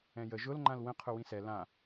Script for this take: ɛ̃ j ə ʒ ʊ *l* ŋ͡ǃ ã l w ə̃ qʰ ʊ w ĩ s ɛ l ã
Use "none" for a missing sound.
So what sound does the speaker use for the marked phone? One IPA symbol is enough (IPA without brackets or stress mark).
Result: l